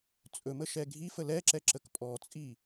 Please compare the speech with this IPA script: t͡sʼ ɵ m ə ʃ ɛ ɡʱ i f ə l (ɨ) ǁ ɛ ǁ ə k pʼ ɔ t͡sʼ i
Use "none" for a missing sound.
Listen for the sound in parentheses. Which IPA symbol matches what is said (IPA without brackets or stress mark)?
ɛ